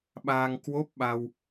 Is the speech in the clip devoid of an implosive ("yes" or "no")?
no